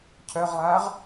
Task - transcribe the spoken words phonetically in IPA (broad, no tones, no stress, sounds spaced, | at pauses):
cʰ œ ʁ lˠ aː ʁ